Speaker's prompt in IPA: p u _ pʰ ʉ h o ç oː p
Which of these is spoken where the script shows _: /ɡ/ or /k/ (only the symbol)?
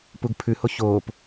ɡ